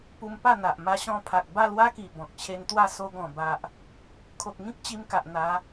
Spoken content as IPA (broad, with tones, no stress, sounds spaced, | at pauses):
p u˧ m p a˥˧ n̪ a˨ ʔ m a˧ ɕ ɔ̃˧ pʰ a˨ k̚ b a˥˧ l w a˦ k i˨˩ b ɔ̃˨ k̚ t͡ɕʰ e˧ n t̪ w a˥˧ s o˧ ɡ ɔ̃˨˩ b a˨ ʔ | kʰ o˨ k̚ ŋ ĩ˦ k̚ t͡ɕ i˧ m k a˨ ʔ n̪ a˨˦